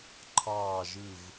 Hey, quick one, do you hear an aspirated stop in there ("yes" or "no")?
yes